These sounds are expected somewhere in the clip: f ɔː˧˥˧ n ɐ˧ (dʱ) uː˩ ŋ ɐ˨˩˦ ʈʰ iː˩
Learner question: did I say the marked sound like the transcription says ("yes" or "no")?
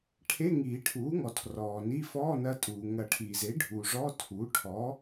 no